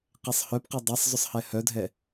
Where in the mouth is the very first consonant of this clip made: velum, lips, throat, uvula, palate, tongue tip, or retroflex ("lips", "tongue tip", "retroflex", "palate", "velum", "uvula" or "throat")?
uvula